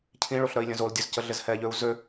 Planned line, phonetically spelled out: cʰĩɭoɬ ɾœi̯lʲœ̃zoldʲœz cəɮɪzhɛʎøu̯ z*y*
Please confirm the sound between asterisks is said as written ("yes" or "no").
no